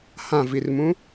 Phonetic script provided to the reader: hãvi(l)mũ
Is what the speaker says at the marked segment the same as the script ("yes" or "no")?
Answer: no